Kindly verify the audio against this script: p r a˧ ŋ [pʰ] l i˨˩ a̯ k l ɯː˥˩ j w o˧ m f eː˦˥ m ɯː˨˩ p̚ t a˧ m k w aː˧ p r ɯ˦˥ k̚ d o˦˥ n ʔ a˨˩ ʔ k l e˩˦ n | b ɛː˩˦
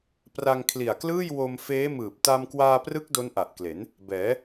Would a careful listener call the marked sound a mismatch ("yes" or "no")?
yes